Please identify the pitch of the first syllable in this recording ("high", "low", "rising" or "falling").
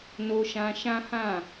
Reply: high